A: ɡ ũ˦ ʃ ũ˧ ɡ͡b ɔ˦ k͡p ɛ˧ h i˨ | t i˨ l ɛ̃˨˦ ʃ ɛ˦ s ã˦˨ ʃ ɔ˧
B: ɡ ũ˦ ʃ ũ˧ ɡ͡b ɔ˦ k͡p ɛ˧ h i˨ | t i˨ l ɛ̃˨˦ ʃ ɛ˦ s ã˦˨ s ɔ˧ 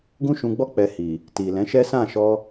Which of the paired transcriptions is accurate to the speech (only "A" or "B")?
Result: A